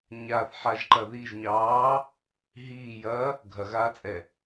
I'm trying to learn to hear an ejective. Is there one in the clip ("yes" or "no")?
yes